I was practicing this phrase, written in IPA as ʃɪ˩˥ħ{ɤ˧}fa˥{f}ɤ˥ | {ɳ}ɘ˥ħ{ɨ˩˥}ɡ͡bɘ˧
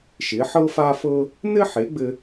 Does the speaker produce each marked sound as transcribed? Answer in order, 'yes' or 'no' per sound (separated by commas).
no, yes, no, no